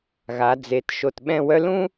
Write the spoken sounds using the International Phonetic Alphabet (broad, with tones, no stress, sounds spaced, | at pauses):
ɣ a˩˧ d͡z e˩˧ t ʃ o˧˩ t ɓ ɛ̃˥˧ w œ˥ l ũ˥